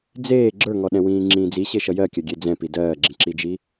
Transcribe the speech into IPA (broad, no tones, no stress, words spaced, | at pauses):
d͡zeː ɡ͡ǁə˞ŋɔɗɛ̃ wĩːŋ͡ǁĩːd͡zi ɕeʃʌjɜkʲɜ ɡʲed͡zɛ̃pi dɜːɡ͡ǁĩǁid͡ʒi